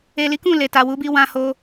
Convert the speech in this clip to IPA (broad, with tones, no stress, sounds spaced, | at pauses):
e˨ l i˨˦ k ũ˦˨ l e˨ t a˨ w u˨˦ b i˧ w ã˧ h o˧